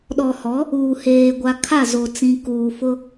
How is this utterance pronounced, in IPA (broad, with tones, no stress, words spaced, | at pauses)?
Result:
ɗɔ˨ hɔ˨˦ | uː˨heː˨ɡʷa˨ kʰa˦˨zo˨ t͡sĩ˨ kuː˨fʊ˦